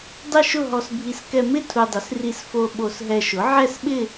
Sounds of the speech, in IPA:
dˤ ɪ˥˧ ʃ ʊ˥˧ ɦ ɔ˧ s bʱ i˧ s k ɛ˧ m ɪ˥˧ tʰ u˧ dˤ ɪ˩˥ s r i˧ s f o˧ ɓ o˧ s ɦ ɛ˧ ʃ ʊ˩˥ ʕ ɛ˥˧ s ɓ ɪ˥˧

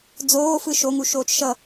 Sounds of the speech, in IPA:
d͡z oː f ɯ ʃ o ŋ u ʃ oː t͡ʃ ʃ ʌ

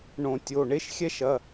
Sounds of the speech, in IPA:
ɳ õ˨˩˦ tʲ o˩˧˩ ɳ e˥ ʃ xʲ ɛ˥ ʃ ɐ˩˧˩

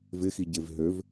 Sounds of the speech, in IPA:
v ɪ x i ɟ e v ɦ ø v

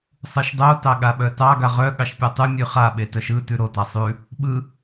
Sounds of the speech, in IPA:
sˤ ɯ ʃ dˤ o t ɑ ɠ a ɓ œ t ɑ ɡ a ʁ œ ɠ ɑ ʃ pʲ a tˤ ʉ mʲ ʉ χ a ɓ e t œ ʃ ɯ t ʉ ɾ o t a sˤ ʉ | ɓ ɯ

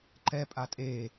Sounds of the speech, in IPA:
ǃ ɛ pʼ a tʼ e

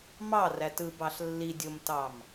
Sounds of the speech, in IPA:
m ɑ r æ t ɯ b ɑ ɬ lː i dʲ o m t ɑ m

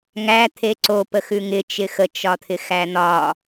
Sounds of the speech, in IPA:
ŋ æ t̪ʰ e ǀ o p ə x ʉ ŋ ɪ t͡ʃ ɪ x ə t͡ʃ ɒ t̪ʰ ɪ x æ n̪ ɒ

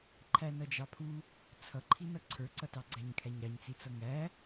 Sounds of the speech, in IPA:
ǃʰ æ n ʌ d͡ʒ ɑ pʰ u | t͡sʰ ʌ ǃʰ i n ʌ ǀʰ ə˞ ǀ ʌ t ɑ ɡ͡ǀ æ ɲ kʰ æ ɲ ɾ ɑ ɲ t͡s i t͡s ʌ ŋ æ

